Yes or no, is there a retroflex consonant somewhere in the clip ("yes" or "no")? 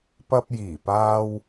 no